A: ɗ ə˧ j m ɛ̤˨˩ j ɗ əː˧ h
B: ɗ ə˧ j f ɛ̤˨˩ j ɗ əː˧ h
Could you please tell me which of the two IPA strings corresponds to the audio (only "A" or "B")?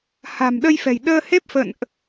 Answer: B